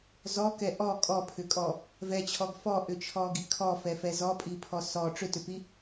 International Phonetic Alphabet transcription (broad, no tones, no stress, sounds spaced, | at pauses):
z ɔ k ɛ ʔ ɔ kʼ ɔ pʰ ʏ kʼ ɔ | v ɛ t͡ɕʰ ɔ ɡ f ɔ ʔ ʏ t͡ʃʰ ɔ ɡ i kʰ ɔ f ɛ f ɛ z ɔ pʼ i pʰ ɔ s ɔ ʈ͡ʂ ʏ t ʏ p i